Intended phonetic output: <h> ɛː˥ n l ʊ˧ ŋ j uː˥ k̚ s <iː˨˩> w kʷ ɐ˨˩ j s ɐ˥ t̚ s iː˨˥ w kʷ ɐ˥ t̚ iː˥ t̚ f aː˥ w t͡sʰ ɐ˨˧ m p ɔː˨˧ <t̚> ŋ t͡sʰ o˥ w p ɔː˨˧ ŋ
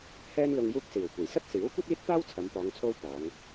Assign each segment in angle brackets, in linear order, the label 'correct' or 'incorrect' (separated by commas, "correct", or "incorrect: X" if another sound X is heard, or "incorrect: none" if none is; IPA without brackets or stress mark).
correct, correct, incorrect: none